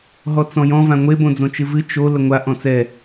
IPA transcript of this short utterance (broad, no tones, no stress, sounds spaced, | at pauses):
ɦ ɔ t͡s ɔ̃ j ɔ̃ v ã ŋʷ e b õ d͡z õ t͡ʃ ɨ v ɨ t͡ʃ o l ə ŋʷ a ʔ ɔ̃ t͡s ɛ